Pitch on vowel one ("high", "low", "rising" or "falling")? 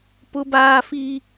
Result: high